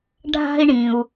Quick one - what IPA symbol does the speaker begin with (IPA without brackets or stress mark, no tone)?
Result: ɖʱ